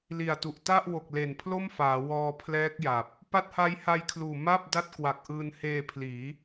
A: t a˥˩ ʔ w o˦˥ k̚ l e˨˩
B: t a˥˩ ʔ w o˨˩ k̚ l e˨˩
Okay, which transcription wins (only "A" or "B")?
B